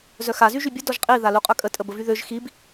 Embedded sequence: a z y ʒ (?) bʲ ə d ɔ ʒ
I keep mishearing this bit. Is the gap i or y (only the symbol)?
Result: y